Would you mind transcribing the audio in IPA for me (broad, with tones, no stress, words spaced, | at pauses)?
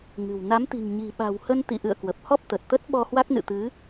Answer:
ŋɨ̤˨˩w na˨˦mt̪i̤˨˩ŋ ɲi̤˨˩ɓa̤˨˩whə˧n t̪ḭ˧˨ʔɨ̰˧˨ə̯ kwə˨˩p̚hɔ˦˥p̚t̪ə˨˩t̚t̪ə˦˥t̚ ɓɔ˧hwa˦˥k̚nɨ̰˧˨t̪ɨ˨˦